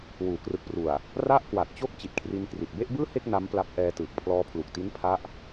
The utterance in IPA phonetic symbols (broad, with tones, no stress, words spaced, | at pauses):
wuː˩˦krɯ˨˩k̚pru˨˩a̯ | ra˥˩ʔkwa˨˩t̚t͡ɕo˥˩k̚ t͡ɕi˨˩t̚kʰri˧nkri˨˩t̚ be˥˩ʔbɯː˥˩he˥˩k̚ na˦˥mpla˦˥p̚ʔɛː˧tɯː˨˩k̚ pʰlɔː˧pʰlu˨˩k̚ti˦˥n pʰa˦˥ʔ